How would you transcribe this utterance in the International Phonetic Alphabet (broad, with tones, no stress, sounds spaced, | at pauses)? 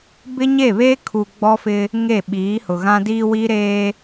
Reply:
b ɪ˦ ɲ e˦˨ β eː˦ kʰ u˨ ɡ͡b ɔ˦ f ɪ˦ | ŋ e˦˨ ɓ iː˨˦ h ʊ˨ ɣ ã˦ d iː˦ w i˦ ɾ eː˦